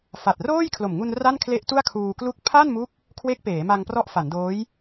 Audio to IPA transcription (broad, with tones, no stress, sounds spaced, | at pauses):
f a˨˩ t̚ r oː˥˩ j kʰ l o˨˩ m ŋ u˧ n r a˥˩ n kʰ l e˦˥ ʔ t u˥˩ a̯ kʰ uː˧ k l u˥˩ k̚ pʰ a˥˩ n m u˦˥ k̚ | kʰ w e˦˥ k̚ p eː˩˦ m a˧ ŋ p r ɔ˦˥ ʔ f a˩˦ n d oː˦˥ j